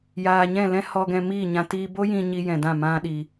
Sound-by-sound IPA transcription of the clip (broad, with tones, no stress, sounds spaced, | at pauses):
j aː˨ ɲ ɛ̃˦˨ l ɛ̃˦ h ɔ˧ ɡ ɛ̃˧ m iː˦˨ ɲ ã˧ t iː˧ b o˦ j ĩ˧ ɲ i˧ j ɛ̃˨ d ã˦˨ m ã˦ ɗ i˧